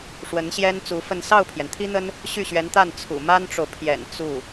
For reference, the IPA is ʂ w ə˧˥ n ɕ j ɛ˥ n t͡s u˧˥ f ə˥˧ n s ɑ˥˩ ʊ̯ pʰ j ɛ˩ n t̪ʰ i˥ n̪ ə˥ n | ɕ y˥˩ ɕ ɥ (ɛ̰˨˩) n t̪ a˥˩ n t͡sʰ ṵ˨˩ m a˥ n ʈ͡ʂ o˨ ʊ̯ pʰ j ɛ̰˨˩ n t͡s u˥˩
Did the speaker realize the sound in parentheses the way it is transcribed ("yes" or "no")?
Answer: no